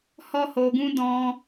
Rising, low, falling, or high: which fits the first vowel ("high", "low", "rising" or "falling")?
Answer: high